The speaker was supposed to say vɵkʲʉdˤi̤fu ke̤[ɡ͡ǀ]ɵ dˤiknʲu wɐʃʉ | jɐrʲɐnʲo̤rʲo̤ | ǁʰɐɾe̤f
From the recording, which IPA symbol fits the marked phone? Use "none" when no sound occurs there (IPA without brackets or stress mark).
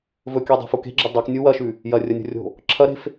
ɡ͡ǁ